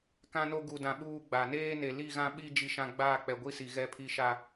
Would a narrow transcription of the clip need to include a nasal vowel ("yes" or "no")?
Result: yes